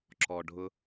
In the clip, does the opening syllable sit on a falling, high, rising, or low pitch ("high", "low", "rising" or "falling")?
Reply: low